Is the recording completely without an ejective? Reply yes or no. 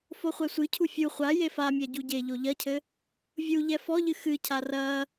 yes